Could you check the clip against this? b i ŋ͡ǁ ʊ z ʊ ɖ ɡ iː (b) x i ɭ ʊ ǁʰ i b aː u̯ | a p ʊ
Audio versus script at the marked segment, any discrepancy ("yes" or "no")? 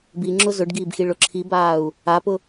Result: no